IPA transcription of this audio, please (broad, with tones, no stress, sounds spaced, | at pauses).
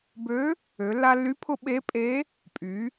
b ø˧˥ | ø˩˧ lː a˧ lː y˧˥ pʰ ʊ˧ ɓ e˧˥ pʼ e˧˥ | pʼ y˩˧